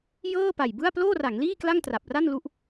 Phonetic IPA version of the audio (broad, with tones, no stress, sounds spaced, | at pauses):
j ɤː˥˩ p a˨˩ j b ɯ˥˩ a̯ p l oː˥˩ r a˩˦ ŋ l iː˥˩ k l a˥˩ ŋ t r a˨˩ p̚ r a˥˩ n l u˦˥ ʔ